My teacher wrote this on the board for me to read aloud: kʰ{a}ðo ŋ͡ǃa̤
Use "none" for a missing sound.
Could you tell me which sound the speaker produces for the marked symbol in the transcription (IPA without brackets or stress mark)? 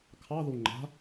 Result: ɑ